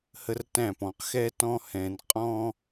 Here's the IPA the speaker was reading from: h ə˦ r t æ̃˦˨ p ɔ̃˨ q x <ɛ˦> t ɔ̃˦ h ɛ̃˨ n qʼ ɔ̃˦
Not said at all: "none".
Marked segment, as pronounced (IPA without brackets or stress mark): ɛ˦